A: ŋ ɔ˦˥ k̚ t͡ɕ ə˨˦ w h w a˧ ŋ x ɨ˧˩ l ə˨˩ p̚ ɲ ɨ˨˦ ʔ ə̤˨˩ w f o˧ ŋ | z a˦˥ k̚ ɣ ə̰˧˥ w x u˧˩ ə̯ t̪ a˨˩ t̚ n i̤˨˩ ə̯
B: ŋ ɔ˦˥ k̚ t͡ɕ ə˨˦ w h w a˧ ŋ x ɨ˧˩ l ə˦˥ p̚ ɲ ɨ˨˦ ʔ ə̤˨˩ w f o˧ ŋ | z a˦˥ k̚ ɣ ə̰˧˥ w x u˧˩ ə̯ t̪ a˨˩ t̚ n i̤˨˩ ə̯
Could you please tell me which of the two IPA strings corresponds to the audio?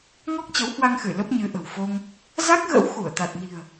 B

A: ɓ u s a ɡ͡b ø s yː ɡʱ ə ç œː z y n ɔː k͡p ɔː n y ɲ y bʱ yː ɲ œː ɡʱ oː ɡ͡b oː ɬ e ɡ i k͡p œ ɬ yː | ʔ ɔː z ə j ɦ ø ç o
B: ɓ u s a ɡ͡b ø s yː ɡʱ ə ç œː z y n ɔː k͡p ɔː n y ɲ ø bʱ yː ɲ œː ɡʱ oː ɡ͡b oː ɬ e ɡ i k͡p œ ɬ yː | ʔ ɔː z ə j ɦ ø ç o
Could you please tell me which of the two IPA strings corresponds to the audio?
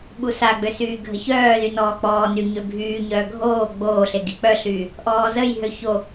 B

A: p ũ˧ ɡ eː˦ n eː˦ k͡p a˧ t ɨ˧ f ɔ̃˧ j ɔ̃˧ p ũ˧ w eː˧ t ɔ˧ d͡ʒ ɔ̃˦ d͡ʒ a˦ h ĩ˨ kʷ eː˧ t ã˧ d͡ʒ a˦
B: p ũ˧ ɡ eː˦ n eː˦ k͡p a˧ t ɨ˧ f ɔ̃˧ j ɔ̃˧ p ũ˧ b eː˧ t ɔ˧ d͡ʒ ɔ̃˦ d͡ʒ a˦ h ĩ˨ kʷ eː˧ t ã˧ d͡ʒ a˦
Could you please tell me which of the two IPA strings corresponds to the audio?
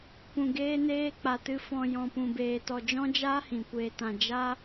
B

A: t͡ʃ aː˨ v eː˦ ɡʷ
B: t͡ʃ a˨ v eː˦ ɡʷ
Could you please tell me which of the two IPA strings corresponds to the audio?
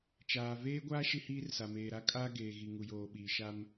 A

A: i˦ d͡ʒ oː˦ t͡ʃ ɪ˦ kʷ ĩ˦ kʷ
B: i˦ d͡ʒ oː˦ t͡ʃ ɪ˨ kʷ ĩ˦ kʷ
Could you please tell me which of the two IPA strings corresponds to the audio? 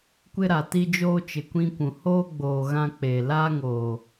B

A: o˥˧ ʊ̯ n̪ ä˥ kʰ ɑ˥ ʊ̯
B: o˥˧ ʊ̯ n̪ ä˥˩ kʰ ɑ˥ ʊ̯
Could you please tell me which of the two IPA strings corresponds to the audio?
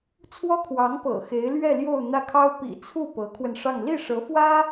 B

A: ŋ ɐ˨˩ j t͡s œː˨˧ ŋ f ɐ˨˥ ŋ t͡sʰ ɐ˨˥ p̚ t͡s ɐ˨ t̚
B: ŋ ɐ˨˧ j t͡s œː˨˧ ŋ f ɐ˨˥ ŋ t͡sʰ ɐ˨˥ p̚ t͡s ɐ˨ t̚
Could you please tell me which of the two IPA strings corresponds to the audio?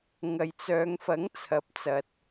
B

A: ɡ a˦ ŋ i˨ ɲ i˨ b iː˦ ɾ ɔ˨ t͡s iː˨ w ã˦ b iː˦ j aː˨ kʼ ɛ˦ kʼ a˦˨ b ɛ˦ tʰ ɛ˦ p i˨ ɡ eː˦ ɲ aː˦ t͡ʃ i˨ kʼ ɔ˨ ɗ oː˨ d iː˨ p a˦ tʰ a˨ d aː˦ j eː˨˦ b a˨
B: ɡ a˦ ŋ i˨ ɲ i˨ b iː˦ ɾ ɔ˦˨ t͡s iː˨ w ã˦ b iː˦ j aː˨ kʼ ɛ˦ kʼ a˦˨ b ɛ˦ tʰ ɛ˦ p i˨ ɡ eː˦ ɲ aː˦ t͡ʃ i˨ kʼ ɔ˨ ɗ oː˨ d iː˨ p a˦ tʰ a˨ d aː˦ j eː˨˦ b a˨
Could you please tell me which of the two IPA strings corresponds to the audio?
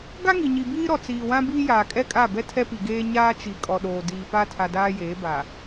A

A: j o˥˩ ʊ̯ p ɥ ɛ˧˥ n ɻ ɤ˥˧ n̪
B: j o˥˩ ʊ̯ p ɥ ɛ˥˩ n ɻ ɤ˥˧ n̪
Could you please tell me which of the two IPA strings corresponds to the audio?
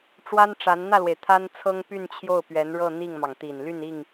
A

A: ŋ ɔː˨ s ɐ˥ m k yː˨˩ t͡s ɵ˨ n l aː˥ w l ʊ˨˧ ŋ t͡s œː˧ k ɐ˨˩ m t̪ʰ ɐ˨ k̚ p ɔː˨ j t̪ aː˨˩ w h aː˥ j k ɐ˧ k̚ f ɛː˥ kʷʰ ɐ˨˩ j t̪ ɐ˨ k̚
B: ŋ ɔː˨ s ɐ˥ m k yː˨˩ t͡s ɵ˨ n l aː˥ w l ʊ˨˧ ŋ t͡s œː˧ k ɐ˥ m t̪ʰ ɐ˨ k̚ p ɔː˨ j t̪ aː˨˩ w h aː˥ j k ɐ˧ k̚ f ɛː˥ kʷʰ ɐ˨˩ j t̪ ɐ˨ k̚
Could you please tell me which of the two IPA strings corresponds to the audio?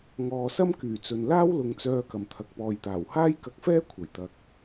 A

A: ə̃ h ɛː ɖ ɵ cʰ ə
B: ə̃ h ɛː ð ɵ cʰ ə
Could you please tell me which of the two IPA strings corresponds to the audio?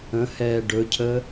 A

